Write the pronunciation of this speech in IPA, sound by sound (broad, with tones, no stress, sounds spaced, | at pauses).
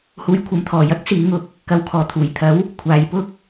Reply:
h uː˨˧ j kʷʰ ɐ˨ m t̪ʰ ɔː˨˩ j ɐ˥ k̚ s iː˨˥ ŋ ʊ˨ k̚ | k ɐ˨ w kʰ ɔː˨˩ t̪ʰ uː˨˩ j t̪ʰ ɐ˨˥ w | kʷʰ aː˨˧ j p ʊ˥ k̚